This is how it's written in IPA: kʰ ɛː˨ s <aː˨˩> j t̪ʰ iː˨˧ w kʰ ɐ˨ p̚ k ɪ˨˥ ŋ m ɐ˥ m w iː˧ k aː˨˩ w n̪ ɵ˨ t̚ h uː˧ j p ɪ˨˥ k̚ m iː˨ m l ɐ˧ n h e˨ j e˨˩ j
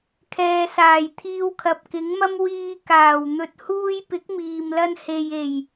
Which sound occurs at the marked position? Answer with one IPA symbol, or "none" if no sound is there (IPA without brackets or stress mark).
aː˨˩